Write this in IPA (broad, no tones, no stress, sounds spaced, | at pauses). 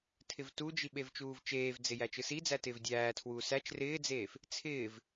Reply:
tʰ ɪ v t u d͡ʒ i ɓ e v t͡ʃ uː v t͡ʃ eː v d͡z ɪ j æ t͡ʃ ɯ s i d͡z æ t ɪː v dʲ æː tʰ w uː s æ t͡ʃ r ɪː d͡z eː f | t͡sʰ ɪː v